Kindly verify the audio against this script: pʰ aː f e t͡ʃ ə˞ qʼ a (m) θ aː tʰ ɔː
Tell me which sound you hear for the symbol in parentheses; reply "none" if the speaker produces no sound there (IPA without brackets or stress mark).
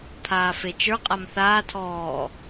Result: m